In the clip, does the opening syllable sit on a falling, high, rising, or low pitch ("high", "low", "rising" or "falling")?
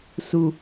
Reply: low